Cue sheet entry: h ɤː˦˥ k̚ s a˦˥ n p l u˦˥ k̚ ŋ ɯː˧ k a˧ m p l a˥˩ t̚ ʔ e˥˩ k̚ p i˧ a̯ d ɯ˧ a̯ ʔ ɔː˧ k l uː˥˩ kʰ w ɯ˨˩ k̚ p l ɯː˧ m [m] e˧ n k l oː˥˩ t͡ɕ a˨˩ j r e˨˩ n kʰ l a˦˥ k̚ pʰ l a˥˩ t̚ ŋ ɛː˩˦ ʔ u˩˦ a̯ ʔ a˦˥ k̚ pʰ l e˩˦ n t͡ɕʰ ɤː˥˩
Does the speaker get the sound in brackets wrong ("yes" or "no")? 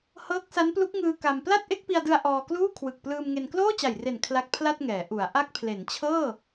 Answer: yes